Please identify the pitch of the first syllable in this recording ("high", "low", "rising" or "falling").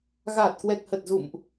low